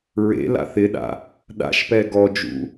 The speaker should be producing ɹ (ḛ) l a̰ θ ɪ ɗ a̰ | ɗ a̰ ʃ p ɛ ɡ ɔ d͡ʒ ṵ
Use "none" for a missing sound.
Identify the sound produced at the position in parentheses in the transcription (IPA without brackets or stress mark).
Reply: ḛ